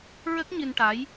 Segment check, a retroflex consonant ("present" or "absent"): present